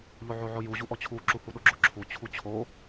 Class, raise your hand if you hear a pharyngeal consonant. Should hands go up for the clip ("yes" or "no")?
yes